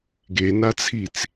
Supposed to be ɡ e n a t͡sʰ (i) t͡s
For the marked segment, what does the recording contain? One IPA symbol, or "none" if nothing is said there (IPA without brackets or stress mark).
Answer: i